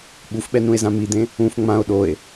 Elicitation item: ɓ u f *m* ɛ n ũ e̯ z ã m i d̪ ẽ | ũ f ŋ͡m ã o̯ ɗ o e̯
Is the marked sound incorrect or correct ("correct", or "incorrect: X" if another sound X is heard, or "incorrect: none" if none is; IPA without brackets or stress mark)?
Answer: incorrect: ɓ